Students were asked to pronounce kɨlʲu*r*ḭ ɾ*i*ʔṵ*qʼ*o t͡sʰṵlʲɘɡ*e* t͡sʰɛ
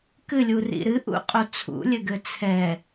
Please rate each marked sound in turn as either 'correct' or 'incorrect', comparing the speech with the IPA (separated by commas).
correct, incorrect, correct, incorrect